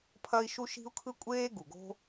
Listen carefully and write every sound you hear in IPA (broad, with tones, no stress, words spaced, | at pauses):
pʰɐ˥i̯ʃu˥ ʃi̤˥u̯kʰɯ˥kʷʼeː˥ ɡu˩ɡo̤˥